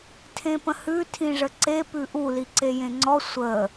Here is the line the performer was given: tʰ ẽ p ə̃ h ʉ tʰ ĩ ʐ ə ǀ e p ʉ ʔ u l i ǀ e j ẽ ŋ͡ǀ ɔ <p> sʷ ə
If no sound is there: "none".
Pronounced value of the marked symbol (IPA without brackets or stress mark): none